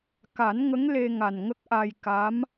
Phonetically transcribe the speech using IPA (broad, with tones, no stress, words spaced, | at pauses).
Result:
ka˨˩˦nŋə˧˥ŋ le˧ŋa˨˩nŋə˦˥k̚ʔa˧j ka˧˥m